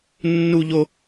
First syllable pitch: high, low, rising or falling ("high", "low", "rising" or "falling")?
high